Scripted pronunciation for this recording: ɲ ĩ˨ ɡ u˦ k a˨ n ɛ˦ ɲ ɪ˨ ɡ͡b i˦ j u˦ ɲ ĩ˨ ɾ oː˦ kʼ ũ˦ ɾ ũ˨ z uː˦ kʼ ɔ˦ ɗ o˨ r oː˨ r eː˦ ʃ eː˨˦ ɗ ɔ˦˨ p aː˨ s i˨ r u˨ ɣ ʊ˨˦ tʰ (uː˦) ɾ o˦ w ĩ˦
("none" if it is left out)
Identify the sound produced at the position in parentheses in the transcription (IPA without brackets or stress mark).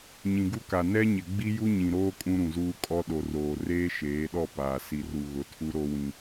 u˦